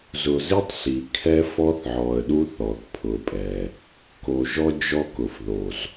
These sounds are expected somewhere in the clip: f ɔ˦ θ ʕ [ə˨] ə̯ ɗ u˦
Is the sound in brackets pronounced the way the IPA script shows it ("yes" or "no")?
no